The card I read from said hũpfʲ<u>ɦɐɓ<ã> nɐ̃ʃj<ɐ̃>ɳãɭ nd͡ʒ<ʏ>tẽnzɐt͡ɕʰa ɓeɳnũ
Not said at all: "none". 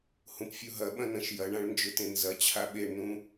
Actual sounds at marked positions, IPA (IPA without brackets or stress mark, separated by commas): u, ɐ̃, ɐ, ʏ